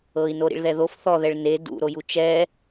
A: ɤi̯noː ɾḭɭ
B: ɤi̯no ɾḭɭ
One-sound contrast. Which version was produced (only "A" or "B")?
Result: B